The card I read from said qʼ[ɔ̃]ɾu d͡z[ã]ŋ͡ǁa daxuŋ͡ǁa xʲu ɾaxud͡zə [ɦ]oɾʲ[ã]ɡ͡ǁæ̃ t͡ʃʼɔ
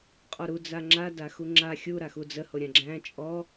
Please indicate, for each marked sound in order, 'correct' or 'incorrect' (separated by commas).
incorrect, incorrect, incorrect, correct